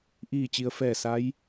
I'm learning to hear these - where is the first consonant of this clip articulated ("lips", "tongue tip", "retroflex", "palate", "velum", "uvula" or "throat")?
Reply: throat